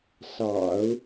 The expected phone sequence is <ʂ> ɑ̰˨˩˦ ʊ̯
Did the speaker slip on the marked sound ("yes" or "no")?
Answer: yes